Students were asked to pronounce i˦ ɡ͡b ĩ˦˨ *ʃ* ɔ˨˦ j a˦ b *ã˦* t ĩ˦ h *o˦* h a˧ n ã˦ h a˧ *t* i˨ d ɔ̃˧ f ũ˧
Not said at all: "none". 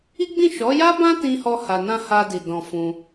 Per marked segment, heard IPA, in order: ʃ, ã˦, ɔ˦, d

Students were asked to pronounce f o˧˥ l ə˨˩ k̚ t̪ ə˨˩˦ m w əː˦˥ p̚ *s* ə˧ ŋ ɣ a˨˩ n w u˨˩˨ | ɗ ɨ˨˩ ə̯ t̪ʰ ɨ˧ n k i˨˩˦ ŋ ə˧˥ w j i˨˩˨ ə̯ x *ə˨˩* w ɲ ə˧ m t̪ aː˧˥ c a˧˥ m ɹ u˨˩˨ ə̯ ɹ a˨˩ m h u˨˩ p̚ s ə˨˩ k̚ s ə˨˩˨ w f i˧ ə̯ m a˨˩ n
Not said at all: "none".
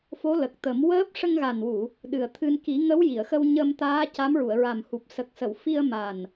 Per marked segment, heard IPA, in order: ʂ, ə˧

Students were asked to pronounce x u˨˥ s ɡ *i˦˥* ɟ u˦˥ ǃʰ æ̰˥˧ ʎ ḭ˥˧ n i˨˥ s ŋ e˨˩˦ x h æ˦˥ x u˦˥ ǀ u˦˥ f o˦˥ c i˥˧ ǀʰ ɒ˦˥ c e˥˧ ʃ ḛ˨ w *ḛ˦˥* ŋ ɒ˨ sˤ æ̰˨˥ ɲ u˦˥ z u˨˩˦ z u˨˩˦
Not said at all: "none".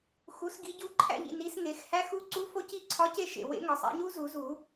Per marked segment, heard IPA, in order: i˨˥, ḛ˦˥

